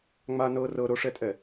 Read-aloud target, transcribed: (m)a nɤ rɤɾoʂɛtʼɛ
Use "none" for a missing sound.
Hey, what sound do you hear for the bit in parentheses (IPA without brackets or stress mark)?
ŋ͡m